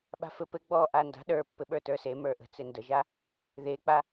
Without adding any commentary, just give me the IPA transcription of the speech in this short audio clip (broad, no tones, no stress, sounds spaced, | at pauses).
ɓ a̤ f ɘ p ɘ ɡ͡b ɔ ʔ a n d a̤ ɗ ə˞ pː ɘ ɓ ə˞ t ə˞ s e m ə˞ ʔ ə̤ t͡s e n d ə ʒ a | ð e k͡p a